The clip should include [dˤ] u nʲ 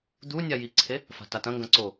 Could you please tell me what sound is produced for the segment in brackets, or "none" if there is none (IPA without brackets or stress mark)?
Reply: d̪